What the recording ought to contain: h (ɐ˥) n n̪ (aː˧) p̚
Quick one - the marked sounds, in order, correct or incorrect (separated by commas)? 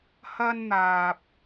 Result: correct, correct